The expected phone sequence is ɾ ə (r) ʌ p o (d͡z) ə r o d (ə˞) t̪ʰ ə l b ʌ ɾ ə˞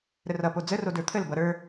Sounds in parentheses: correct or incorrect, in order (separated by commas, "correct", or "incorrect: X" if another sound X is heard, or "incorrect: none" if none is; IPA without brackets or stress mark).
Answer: correct, correct, correct